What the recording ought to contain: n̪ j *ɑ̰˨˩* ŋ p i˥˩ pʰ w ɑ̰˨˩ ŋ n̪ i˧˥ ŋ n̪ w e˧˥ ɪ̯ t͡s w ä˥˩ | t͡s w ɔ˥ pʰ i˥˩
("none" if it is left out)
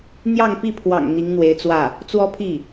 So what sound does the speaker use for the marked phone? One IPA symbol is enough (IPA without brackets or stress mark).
ɑ˥˧